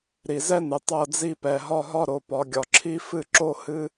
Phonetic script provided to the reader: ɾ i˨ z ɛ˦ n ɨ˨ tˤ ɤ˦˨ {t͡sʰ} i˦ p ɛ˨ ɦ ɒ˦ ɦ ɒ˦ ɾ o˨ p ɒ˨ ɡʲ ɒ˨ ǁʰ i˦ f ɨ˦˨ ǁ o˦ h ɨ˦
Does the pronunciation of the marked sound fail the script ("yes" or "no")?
yes